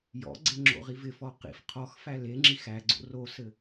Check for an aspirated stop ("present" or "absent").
present